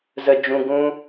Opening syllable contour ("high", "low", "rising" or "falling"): low